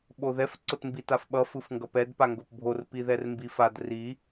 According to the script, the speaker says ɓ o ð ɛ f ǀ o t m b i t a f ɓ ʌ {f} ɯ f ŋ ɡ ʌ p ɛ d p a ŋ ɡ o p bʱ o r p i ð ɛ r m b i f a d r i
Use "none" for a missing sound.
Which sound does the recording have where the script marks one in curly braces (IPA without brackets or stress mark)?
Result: f